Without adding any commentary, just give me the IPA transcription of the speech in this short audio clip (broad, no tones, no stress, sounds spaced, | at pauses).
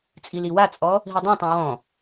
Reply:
t͡sʼ i l i w a t͡sʼ ɔ | ɦ i dˤ ã tˤ ã w ɔ̃